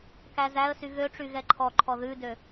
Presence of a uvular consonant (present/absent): absent